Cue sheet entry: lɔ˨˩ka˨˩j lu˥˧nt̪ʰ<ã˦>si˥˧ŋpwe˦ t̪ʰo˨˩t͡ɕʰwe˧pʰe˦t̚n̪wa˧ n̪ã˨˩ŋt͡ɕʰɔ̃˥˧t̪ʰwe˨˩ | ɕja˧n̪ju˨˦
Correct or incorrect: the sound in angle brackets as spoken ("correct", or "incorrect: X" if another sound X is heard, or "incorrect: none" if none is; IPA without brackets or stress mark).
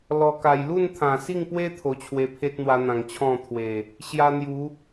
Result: incorrect: ã˨˩